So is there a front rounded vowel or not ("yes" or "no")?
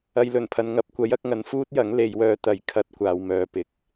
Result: yes